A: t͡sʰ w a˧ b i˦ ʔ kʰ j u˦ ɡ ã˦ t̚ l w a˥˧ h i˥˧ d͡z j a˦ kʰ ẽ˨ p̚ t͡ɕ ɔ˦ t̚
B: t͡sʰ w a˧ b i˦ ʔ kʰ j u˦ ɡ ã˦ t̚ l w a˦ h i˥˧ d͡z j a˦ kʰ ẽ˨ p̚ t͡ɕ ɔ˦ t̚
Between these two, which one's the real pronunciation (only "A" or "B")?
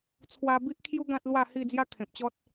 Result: A